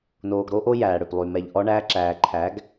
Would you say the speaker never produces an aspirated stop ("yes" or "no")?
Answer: no